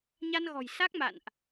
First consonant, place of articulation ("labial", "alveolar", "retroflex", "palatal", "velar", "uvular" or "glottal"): palatal